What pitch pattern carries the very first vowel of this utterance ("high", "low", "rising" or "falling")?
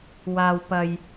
low